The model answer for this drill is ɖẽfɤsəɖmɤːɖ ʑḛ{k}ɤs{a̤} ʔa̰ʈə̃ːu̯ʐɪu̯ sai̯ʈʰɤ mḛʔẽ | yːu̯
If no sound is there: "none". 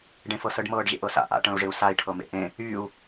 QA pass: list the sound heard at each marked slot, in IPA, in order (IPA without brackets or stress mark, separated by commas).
ʔ, a̰